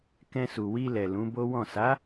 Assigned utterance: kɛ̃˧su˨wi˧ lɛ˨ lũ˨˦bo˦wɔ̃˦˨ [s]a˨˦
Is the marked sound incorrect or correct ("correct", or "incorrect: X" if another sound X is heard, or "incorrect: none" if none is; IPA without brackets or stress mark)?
correct